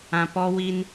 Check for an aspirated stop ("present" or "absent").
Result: absent